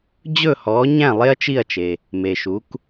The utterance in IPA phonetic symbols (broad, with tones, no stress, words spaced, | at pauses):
d͡ʑɵ˥˩hɔː˩˥ ɲæ̃˥˩ lˠe˥ɐ̯t͡ʃi˥˩ɐ̯t͡ʃe˩ | me˩ʃu˩˥k